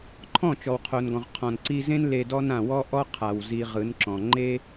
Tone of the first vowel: falling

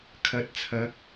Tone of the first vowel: rising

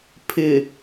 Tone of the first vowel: low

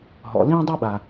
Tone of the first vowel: low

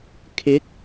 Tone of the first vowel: rising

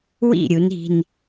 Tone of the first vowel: falling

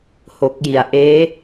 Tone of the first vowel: low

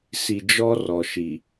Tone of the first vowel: low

